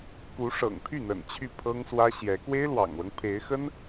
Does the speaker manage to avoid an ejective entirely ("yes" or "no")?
yes